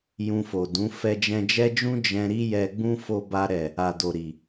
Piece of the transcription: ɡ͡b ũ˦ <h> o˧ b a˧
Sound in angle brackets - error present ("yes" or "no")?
yes